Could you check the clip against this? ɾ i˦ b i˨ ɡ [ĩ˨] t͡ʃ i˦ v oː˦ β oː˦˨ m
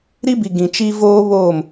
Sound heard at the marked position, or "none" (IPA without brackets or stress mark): ĩ˨